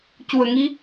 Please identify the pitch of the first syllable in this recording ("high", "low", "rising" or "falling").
low